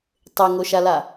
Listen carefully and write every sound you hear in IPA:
tˤ ɘ ŋ o ʃ a l a

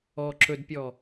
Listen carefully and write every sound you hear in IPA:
ɔ ǁ ɵ d pʲ ɔ

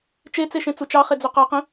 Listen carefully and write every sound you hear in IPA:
t͡ʃ e t͡s e ʃ ẽ t͡s u t͡ʃ ɑ χ e d͡z y q ɑ q ĩ

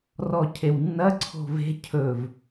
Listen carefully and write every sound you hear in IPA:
r ɔ cʰ e w nː ɐ ǀʰ o̤ v e̤ cʰ ɵ v

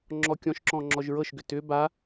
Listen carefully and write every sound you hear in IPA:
ŋ͡ǁ ɔ kʲ ɔ̃ ʃ ǁ ɔ̃ ŋ͡ǁ ɔ ʒ ɹ ɤ ʃ ɡ ʏ t ʏ b a

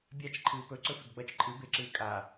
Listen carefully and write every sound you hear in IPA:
bʲ a t͡ʃ ǃʰ ɨː p ɵ ǀ ɵ f ɪ ɡ ɡ͡b ʌ t͡ʃ ǃʼ ɨ b e ǁ ɨː kʼ a

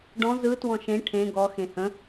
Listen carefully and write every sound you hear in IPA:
ɖ ɔ̃ z ɯ t w ɔ̃ ʃ ẽ ʈʰ ẽ ɡ ɔ x ẽ h ə̃

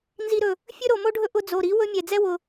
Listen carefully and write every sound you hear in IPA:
n z i˧ ɾ ɵ˨˩ | fʲ ɵ˥ ɾ o˨˩ m o˥ ɖʱ ɵ˥ ʔ ʊ˧ d͡z o˨˩ ɾ i˨˥ w ɵ˥ mʲ ɛ˨˩ d͡z ɛ˥ w ʊ˨˩

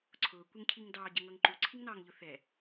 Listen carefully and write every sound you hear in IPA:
ǀʰ ʊː kʷ ɪ ŋ cʰ i ŋ d ɑː ɟ ə ŋ ʌ ŋ ǃ u ǀʰ i ŋ n ɑː ŋ ʎ ʊ θ ɛ

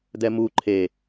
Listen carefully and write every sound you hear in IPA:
d ɛ m u ǃʰ e

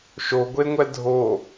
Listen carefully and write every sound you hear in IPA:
ʃ o ɡʷ e ŋʷ ɛ dʱ o

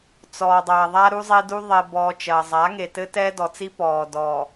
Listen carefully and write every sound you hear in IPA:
t͡s ɔː˨ dˤ ɐː˨ ðˤ a˦ ɾ u˦ zˤ e˦ d u˦ ðˤ e˨ b ɔː˨ t͡ʃ ɐː˨ zˤ a˨˦ ŋ e˨ t ɘ˦ t ɛː˦ d ɔ˨ t͡s i˦ p ɔː˨ d ɔː˨

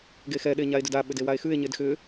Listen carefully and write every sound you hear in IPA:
ɡ e x ɛ ɗ e ɲ a e̯ d ʏ d a ɓ ʏ d e w a e̯ x ʉ e̯ ɲ e d x ʏ

